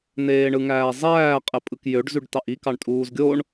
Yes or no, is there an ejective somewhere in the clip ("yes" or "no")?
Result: yes